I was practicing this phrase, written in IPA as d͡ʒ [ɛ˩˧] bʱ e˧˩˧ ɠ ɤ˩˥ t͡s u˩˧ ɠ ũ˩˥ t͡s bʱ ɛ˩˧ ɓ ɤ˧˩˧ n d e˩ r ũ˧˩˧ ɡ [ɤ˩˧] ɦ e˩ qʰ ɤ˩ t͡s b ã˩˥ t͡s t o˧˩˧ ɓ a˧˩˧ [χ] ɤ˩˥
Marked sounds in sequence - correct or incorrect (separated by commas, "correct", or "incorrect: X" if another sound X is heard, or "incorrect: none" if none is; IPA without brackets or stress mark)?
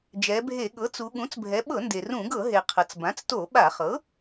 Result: correct, incorrect: ɤ˧˩˧, correct